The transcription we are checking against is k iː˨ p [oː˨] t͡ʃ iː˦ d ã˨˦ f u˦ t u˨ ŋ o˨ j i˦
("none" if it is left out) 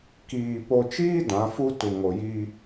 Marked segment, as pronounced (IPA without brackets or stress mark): o˨